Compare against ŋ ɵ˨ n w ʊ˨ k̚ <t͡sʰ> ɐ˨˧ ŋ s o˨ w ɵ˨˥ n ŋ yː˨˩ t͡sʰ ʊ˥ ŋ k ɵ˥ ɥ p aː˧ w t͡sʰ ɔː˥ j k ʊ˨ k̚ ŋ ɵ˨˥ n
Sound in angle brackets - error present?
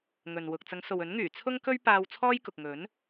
yes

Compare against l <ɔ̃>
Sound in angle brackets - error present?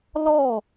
yes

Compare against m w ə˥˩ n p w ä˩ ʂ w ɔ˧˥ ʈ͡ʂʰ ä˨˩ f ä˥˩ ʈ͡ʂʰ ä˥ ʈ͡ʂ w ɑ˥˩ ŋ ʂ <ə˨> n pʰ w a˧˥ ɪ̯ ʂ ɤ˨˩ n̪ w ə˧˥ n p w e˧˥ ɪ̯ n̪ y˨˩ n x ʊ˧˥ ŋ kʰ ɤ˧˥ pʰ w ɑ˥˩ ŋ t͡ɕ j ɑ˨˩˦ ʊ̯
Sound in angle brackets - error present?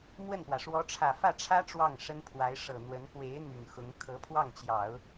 yes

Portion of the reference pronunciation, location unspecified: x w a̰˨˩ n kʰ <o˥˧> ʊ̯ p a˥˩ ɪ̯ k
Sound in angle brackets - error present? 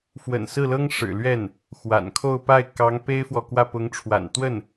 no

